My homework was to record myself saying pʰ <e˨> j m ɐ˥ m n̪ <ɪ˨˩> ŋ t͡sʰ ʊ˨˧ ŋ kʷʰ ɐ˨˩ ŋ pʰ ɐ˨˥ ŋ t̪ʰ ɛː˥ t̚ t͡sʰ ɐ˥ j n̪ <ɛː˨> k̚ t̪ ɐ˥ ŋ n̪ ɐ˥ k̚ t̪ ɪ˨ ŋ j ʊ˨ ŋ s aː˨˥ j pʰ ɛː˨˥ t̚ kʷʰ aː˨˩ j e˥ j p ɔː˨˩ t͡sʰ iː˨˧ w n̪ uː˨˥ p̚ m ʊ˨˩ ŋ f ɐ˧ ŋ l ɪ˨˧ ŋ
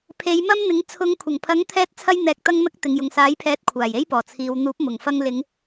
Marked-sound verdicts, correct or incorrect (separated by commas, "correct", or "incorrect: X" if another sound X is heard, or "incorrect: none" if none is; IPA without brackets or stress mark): incorrect: e˨˧, incorrect: ɪ˨˥, incorrect: ɛː˧